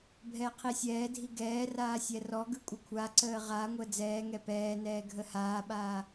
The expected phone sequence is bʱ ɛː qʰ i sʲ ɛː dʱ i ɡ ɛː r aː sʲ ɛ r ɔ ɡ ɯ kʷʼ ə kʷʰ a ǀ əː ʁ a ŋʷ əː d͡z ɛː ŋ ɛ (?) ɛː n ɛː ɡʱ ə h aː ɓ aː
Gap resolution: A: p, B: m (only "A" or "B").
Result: A